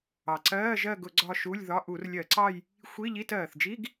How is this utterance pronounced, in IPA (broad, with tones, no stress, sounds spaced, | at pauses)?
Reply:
ɑ˨˩ ǀ ɜː˧˥˧ ʒ ɜ˦˨ ɡ ʊ˧˩˧ ɡ͡ǀ ɒ˦˨ ʃ u˧˥˧ lʲ ð ɒ˧˥˧ ʔ u˧˩˧ r lʲ ɜ˧˩˧ ǀ ɑ˦˨ j | xʷ i˧˥˧ ʎ i˧˥˧ t ɜː˨˩ θ d͡ʒ i˧˥˧ ɡ